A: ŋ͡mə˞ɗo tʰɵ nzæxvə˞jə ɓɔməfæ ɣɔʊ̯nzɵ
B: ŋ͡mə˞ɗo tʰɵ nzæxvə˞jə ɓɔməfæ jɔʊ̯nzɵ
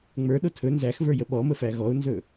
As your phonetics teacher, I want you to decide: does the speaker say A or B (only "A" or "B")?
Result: A